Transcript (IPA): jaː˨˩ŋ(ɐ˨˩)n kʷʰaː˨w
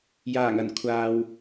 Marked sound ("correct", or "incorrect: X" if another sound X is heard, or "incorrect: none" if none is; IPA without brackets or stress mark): correct